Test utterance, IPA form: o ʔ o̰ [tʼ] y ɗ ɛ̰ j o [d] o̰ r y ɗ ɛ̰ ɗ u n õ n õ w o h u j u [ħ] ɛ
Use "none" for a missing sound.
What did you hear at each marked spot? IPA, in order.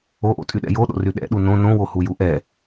tʼ, ɗ, ʔ

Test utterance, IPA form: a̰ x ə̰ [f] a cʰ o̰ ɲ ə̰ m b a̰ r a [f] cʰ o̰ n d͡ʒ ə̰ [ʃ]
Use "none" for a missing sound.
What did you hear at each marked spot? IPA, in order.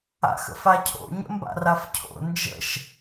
f, f, ʃ

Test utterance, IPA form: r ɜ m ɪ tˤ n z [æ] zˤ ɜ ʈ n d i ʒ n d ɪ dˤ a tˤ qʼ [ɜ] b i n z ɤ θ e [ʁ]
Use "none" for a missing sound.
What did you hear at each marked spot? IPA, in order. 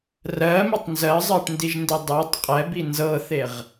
ɜ, ɛ, ʁ

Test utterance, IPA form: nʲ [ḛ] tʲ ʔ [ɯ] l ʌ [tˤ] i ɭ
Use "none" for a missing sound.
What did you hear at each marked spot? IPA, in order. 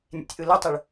ḛ, ɯ, tˤ

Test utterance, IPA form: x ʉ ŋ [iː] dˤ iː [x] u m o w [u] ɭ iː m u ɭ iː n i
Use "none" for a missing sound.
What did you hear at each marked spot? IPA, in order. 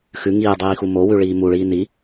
iː, x, ʉ

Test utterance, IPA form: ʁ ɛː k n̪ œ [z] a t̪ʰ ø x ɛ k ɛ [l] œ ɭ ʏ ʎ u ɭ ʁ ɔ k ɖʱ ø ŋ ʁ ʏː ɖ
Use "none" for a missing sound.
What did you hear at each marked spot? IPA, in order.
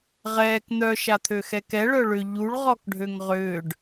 ʃ, ɭ

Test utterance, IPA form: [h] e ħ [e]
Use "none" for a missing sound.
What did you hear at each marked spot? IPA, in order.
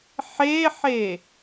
ħ, e

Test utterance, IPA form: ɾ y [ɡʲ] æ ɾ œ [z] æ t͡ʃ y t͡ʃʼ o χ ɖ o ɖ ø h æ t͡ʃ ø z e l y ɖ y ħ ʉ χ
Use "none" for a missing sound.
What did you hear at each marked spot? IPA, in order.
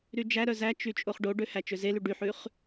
d͡ʒ, z

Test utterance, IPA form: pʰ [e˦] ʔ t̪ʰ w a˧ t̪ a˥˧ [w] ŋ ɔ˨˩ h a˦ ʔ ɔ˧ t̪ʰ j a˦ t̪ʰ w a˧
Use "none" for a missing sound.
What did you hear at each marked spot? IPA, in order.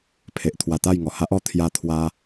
e˨, j

